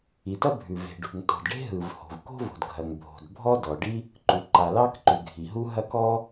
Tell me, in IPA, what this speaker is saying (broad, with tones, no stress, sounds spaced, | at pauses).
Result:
i˩ t ɐ˥ bʱ ʉ˩ v e̤˩ ɖ ṳ˩ ŋ t ɔ̤˩ d ɖ e̤˥ ɦ ɯ˩ v h o̤˩ v k o̤˥ v o̤˩ d ɡʱ ɐ˩ ŋ bʱ o̤˩ d bʱ ɔ˥ d ɔ˩ ɖ i˥ | ǃ u˩ ǃ a˩ l ɑ˥ k ǃ ʉ˩ ɡʱ i˩ ɦ u˥ ɦ ɐ˥ k ɔ˥